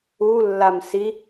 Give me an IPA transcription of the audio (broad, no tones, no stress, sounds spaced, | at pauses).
u lː a m s i